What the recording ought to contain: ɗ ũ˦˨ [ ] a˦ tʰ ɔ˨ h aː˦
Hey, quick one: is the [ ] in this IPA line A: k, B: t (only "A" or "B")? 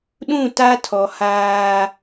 B